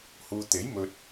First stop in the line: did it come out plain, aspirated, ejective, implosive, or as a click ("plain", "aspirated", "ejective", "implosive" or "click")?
plain